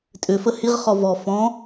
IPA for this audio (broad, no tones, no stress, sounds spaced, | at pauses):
tʼ ʏ f ə h i ʁ χ ɔ v ɔ f ɔ̃